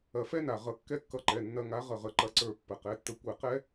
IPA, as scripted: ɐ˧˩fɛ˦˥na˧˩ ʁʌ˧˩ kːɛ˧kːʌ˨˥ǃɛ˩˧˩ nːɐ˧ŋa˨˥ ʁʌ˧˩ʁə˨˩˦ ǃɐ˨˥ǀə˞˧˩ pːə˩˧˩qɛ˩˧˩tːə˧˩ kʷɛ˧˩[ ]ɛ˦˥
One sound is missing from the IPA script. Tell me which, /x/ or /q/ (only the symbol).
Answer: q